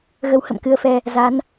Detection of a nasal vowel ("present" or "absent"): absent